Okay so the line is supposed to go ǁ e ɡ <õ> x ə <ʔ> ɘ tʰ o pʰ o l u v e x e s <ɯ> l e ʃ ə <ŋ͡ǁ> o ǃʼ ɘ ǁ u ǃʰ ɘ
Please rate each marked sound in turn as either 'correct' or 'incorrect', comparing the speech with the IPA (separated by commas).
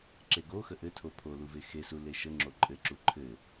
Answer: incorrect, correct, incorrect, correct